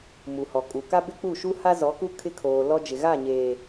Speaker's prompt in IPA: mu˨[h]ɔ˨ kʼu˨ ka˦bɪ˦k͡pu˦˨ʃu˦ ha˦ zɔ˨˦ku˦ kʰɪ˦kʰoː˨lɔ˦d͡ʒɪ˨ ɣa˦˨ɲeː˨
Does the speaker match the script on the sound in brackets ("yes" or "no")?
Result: yes